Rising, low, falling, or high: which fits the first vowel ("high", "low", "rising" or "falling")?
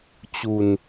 low